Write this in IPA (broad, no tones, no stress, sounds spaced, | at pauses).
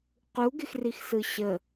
q u ɡ ɪ x r i x s ɯ ɕ ə